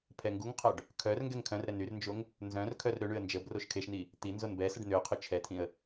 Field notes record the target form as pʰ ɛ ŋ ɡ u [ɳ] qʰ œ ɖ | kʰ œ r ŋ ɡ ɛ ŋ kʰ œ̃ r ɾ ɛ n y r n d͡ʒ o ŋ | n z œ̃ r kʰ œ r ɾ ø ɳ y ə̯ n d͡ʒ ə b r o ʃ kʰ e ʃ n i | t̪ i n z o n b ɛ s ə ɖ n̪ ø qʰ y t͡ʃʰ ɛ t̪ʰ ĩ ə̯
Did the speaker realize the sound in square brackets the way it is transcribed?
no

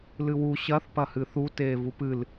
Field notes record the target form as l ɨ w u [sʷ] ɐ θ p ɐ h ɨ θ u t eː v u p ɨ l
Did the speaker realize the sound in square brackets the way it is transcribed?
no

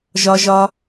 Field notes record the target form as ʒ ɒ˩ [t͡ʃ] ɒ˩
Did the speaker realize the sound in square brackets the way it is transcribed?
no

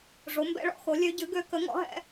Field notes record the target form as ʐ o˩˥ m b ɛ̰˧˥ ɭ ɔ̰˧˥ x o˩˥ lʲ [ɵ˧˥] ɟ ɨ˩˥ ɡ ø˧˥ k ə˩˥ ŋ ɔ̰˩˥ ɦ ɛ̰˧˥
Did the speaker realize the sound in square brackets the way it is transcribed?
no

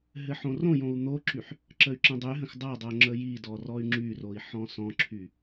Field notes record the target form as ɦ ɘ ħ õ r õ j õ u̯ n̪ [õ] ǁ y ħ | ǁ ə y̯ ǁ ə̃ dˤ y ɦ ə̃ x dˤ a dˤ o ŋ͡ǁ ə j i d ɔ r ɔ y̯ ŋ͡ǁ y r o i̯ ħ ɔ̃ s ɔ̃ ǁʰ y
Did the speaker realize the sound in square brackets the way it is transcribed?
no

